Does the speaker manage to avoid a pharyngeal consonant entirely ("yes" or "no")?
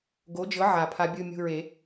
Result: no